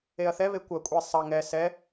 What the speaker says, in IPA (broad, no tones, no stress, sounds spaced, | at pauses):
e ɐ̯ θ ɛ β e kʷ ɐ kʷʼ e sˤ ɐ ŋ ɛ s ɛ